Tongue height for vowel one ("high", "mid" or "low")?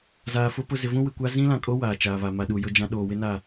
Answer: low